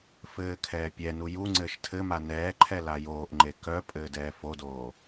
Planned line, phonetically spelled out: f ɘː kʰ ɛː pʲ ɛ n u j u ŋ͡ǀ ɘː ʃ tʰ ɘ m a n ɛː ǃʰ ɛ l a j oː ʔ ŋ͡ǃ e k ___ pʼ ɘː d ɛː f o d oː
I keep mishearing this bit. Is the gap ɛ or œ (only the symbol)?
œ